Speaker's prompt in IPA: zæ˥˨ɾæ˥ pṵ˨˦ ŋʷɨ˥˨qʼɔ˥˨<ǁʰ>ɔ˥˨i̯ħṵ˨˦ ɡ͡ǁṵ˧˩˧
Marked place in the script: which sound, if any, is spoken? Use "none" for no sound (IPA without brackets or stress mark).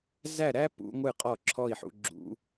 ǁʰ